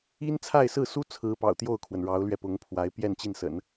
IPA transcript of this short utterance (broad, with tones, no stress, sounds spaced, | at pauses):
i˥ n t͡sʰ a˥˧ ɪ̯ s ɹ̩˥˩ s u˥ t͡sʰ ɹ̩˧˥ p ɑ̰˨˩ ʊ̯ t̪ j o˥˩ ʊ̯ kʰ w ə˩ n ɻ ɑ˧˥ ʊ̯ l ɥ ɛ˧ p ʊ˧˥ ŋ pʰ w a˧˥ ɪ̯ p j ɛ˥˧ n t͡ɕ i˥˩ n s ə̰˨˩˦ n